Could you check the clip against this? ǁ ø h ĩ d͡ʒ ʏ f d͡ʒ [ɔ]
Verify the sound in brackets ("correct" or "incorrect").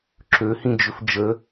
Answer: incorrect